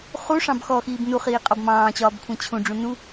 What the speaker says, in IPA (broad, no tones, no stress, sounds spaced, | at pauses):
χ u ʂ ɑ̃ b x ɔ x iː b n u χ iː qʼ ɒ b m ɑ̃ː t͡ɕ ɒː b kʷʰ ĩ t͡ɕʰ ũ ɖ͡ʐ ũ n u